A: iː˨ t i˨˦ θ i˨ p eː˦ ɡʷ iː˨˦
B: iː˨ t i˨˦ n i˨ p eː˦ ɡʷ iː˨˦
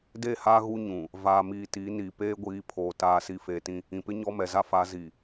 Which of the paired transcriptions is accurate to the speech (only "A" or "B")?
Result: B